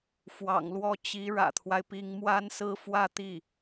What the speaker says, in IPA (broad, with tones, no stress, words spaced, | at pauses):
fwɑ̰˨˩ŋlwɔ˥˩ t͡ɕi˧˥ ɻä̰˨˩t̪ʰwa˦ɪ̯pi˧˥ŋ mwa˥nsɹ̩˥ fwä˥˧ t̪i˥˩